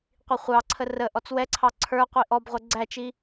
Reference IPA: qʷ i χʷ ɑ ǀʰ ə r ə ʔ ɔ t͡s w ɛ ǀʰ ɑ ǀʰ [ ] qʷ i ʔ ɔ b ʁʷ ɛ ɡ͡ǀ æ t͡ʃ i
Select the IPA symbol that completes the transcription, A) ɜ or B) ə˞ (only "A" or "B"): B